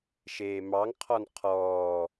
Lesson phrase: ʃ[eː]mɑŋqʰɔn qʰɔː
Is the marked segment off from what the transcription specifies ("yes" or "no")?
no